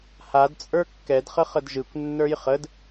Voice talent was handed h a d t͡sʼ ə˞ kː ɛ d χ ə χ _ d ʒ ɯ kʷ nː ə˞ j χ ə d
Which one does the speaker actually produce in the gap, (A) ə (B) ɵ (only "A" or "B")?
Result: A